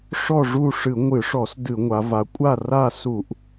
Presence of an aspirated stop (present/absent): absent